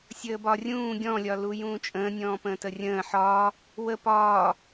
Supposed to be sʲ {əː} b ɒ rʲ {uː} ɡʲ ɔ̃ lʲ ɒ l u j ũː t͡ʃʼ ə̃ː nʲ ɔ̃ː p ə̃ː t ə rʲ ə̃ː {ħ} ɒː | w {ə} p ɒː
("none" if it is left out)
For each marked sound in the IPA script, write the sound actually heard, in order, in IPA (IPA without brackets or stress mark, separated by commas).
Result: əː, ũː, ħ, ə